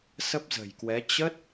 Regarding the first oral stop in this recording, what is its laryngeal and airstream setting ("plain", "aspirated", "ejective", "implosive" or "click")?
plain